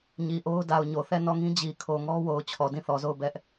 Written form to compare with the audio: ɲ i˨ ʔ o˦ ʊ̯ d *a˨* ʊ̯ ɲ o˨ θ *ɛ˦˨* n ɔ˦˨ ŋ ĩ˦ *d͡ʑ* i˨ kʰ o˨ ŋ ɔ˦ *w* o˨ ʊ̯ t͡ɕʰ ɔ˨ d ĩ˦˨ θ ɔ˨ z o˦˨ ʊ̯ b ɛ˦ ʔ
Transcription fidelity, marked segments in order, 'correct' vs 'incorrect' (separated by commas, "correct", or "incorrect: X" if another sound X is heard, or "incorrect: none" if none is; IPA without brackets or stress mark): correct, correct, correct, correct